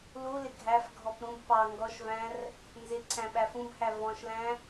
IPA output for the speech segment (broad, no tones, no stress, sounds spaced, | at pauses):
l u l ɪ ɡʱ æ f ɡʱ ɔ p ɾ ũ b p ɑ ŋ ɡ ɔ ʃ v æ̃ r | n z ɪ ǀʰ æ̃ ɓ æ f ũ b h æ v ɔ̃ ʃ l æ̃